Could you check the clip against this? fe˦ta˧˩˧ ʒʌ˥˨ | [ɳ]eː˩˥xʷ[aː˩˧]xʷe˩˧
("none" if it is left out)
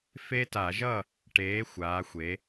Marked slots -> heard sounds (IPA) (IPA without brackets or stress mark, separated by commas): ʈ, aː˩˧